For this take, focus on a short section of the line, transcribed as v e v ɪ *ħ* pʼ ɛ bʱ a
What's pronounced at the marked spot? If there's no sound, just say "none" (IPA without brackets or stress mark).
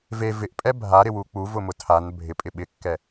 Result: ʔ